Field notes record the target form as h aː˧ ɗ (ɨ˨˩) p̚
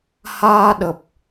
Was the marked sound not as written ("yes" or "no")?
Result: yes